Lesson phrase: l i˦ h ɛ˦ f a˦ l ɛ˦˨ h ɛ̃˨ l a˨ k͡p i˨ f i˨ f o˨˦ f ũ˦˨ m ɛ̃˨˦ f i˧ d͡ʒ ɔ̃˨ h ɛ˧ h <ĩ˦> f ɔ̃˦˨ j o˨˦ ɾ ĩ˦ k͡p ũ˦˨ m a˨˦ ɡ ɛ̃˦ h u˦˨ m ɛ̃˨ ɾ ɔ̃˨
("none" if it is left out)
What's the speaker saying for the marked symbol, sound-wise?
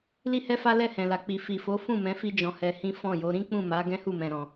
ĩ˦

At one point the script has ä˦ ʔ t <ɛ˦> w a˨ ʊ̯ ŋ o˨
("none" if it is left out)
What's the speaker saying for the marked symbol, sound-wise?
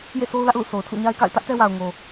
ɛ˦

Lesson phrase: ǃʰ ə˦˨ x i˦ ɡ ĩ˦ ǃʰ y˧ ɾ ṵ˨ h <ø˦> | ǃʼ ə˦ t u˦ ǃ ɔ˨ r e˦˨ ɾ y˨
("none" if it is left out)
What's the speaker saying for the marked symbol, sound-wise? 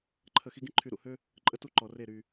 ø˦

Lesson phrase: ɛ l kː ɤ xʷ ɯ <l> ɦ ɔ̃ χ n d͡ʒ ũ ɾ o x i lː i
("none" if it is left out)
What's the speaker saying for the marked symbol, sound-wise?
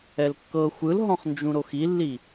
l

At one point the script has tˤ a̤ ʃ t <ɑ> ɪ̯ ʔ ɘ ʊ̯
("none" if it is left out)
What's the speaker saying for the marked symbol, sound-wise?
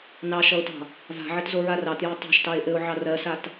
ɑ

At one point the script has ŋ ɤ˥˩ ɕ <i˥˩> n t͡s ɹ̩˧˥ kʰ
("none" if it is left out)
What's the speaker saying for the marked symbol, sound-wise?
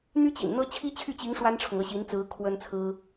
i˧˥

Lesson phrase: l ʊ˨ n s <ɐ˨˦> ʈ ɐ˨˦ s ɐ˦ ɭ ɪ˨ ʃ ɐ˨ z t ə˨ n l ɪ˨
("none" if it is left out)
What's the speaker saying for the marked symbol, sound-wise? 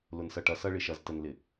ɐ˨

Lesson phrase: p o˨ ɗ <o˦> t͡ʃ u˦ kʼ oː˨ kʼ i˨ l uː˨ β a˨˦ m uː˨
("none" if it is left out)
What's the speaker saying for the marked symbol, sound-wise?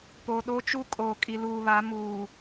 o˦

